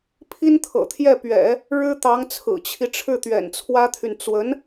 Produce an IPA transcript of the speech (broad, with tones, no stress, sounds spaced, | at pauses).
pʰ i˥ n t̪ʰ ɤ̰˨˩ t̪ʰ j ɛ˥˩ p ɥ ɛ̰˨˩˦ | ɻ ɻ̩˥ t̪ ɑ˧˥ ŋ t͡sʰ ɹ̩˨˩ t͡ɕʰ i˦ ʈ͡ʂʰ ɻ̩˥˩ t̪ ɥ ɛ̰˨˩ n t͡sʰ w ä˥ t̪ʰ y˨ n t͡s w ə˧˥ n